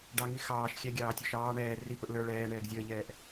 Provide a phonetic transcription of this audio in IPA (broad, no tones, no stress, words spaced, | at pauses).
ɖɑŋi xɑːʃ xʲɛɡʲɑː tʲɔʃɑː ɳɛː ri pʊʔlə˞ ɭɛː ɳɛːɡzʲəːʎɛːʔ